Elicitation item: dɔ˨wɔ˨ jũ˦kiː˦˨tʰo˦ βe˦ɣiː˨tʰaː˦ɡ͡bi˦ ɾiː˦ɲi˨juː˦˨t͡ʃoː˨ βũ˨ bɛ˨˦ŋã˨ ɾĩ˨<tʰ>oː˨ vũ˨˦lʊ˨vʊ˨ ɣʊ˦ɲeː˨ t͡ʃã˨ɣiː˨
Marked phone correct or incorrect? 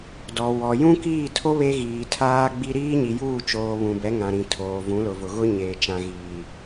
correct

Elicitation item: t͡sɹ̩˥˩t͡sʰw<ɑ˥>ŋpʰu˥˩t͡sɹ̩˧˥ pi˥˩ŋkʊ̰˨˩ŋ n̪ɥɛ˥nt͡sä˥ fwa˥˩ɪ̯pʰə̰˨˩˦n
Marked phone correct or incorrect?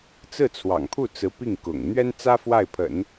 incorrect: ɑ̰˨˩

